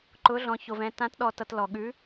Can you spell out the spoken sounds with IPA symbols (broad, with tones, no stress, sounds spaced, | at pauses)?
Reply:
ǃ ʊ˨˥ ɮ ɔ̃˨ ç o˨ v ɛ̃˨ t ã˨˥ t ɗ ɔ˨ t ʌ˨ t l ɔ˨ ɠ ʉ˨˥